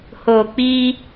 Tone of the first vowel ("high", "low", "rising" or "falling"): low